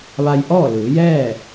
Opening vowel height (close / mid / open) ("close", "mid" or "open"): open